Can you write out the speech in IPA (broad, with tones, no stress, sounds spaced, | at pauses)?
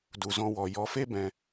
d u˨ z ɔ̃˧ w ɔ˨ j ɔ˨˦ f e˦ b ɛ̃˧